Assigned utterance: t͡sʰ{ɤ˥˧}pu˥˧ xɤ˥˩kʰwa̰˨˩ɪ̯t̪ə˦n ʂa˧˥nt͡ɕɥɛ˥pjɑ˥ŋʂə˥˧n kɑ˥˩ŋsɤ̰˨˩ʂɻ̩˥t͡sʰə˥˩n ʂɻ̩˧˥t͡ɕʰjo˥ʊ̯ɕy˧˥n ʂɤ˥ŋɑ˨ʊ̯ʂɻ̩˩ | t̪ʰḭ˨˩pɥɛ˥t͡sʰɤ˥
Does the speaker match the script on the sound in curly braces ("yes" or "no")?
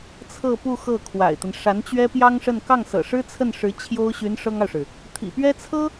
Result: yes